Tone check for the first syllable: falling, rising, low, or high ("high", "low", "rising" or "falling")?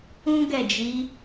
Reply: high